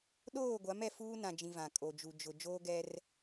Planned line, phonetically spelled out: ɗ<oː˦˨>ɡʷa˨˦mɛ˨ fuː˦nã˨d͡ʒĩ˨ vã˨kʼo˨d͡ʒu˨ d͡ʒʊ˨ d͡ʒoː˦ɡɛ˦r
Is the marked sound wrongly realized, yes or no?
no